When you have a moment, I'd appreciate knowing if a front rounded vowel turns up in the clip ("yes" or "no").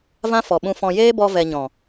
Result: no